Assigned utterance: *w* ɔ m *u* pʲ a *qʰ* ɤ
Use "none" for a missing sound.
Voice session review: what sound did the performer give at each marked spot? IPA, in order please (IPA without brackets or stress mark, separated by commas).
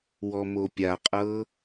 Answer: w, o, qʼ